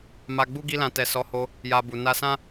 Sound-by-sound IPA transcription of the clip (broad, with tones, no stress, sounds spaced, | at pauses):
m a˧ ɡ͡b u˦ ɡ i˦ l ã˧ t ɛ˨ s ɔ˨˦ h o˧ | j a˧ b u˨ n a˧ s ã˦